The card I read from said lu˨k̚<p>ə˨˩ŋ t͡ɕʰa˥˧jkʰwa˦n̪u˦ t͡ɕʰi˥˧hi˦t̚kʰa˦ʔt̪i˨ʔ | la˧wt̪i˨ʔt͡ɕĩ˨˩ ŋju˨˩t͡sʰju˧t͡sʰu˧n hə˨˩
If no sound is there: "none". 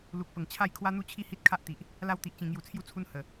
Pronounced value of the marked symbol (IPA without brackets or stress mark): p